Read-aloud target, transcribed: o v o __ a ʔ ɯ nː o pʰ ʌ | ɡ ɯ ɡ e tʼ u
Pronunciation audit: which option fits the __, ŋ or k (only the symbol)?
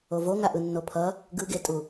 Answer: ŋ